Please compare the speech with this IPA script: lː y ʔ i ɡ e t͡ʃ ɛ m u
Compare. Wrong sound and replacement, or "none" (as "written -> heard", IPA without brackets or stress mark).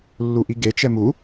y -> u